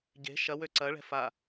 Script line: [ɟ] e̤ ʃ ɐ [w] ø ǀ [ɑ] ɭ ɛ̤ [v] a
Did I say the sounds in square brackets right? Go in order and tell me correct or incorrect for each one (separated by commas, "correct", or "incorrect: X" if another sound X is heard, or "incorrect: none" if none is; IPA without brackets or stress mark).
correct, correct, incorrect: ɐ, incorrect: f